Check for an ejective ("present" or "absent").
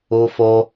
absent